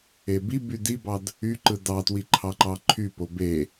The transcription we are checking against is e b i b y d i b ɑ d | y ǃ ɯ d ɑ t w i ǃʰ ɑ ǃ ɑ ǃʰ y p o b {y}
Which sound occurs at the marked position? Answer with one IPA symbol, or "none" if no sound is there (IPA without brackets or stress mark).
e